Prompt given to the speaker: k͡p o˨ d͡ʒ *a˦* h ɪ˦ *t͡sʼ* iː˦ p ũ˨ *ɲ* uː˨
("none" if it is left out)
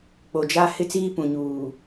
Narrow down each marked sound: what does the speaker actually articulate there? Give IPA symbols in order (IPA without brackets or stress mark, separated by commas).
a˦, t͡s, ɲ